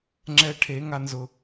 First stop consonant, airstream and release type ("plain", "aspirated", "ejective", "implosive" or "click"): click